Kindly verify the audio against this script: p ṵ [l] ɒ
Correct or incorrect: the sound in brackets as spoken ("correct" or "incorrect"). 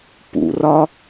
incorrect